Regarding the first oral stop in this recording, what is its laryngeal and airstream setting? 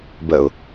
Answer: plain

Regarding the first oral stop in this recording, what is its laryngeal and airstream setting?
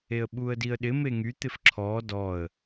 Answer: implosive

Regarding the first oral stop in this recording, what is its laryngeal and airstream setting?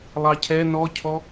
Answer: aspirated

